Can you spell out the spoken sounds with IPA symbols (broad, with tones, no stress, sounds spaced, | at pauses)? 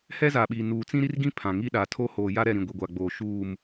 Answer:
h ɛ˦ z a˨ ɓ i˨ n uː˨ t͡s ĩ˦ ɾ i˦ r ɡ ĩ˦ pʰ ã˨ ŋ i˦ ɗ a˨ tʰ o˦ h oː˨ j a˦ ɾ ɛ˦˨ ɾ ĩ˨ ɡʷ i˨ ɡʷ a˨ ɡ͡b oː˨ ʃ uː˦˨ m